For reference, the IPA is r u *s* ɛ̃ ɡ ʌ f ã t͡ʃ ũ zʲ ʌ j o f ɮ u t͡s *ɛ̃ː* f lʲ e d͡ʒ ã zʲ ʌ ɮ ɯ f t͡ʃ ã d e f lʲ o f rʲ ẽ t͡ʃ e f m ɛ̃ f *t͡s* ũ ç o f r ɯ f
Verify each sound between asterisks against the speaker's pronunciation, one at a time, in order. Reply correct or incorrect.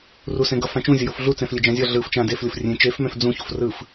correct, incorrect: ɛ̃, incorrect: d͡z

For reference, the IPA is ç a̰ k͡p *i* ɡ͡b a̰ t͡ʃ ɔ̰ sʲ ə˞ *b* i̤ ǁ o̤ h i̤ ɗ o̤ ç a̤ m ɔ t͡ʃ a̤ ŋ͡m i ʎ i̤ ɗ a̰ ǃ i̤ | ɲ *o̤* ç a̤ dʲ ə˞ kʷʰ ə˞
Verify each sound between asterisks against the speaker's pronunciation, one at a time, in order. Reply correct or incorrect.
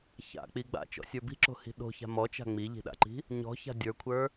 correct, correct, incorrect: ɔ̤

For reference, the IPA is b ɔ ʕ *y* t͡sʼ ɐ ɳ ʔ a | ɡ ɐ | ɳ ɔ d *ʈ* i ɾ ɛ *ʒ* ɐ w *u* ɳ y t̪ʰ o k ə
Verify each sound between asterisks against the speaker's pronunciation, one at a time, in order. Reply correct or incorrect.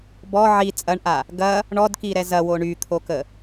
incorrect: i, incorrect: k, incorrect: z, incorrect: o

